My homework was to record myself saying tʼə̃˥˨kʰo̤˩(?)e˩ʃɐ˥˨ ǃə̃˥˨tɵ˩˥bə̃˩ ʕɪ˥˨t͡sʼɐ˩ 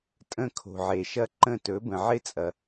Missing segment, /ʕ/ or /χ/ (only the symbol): ʕ